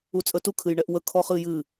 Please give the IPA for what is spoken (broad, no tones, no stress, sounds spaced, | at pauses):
u t͡sʼ ə t u kʰ ɨ j ɳ ɛ ʔ w ə kʰ ɔ χ ɨ j ɨ